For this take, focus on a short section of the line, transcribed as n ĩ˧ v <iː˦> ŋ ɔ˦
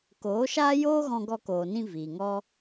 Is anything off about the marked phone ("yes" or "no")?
yes